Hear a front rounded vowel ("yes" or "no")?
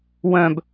yes